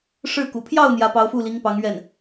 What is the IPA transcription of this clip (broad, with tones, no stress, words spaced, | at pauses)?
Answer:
ʂɻ̩˥˩kṵ˨˩ pʰjɑ˥˩ʊ̯ n̪jä˧˥pɑ˧˥ʊ̯fu˥˩ li˧˥ŋpɑ˧˥ŋ ɥɛ˥˩n